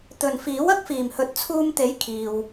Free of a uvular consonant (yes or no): yes